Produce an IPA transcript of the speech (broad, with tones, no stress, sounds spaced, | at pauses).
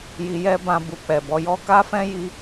j i˧ j ɛ˦ b ã˧ b u˨ k͡p ɛ˨ b ɔ˨˦ j ɔ˦ k a˦ f ɛ̃˦ j i˧